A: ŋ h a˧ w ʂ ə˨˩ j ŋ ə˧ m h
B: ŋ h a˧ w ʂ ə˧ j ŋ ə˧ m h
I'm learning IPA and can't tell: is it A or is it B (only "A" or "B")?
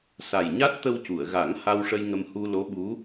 B